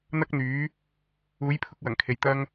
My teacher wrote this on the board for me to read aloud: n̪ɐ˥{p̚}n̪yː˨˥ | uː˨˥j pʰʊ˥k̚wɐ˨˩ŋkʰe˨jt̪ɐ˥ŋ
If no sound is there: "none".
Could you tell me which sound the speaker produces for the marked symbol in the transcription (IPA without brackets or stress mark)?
k̚